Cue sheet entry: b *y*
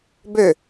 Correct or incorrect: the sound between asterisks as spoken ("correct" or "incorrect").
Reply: incorrect